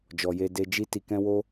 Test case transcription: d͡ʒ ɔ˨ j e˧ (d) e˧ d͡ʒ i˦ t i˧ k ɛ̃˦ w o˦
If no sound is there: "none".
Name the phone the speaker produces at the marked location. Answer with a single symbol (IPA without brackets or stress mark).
d